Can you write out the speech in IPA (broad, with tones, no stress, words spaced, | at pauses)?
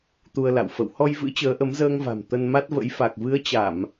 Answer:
t̪u˧ə̯la̰˧˨w fə̰˧˨whɔ˧jvɨ̰˧˥ t͡ɕəː˨˦ʔə˨˦mzəː˧ŋva̤˨˩m t̪ə˧n ma˦˥t̚və̰˧˥j fa˨˩k̚vɨ˨˦ə̯t͡ɕa˧˩˨m